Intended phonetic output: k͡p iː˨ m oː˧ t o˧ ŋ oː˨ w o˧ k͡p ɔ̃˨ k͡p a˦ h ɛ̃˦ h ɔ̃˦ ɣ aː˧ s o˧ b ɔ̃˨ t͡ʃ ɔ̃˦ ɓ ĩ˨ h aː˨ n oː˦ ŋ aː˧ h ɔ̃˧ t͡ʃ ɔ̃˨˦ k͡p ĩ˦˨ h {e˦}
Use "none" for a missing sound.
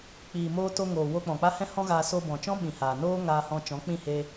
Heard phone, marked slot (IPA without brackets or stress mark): e˧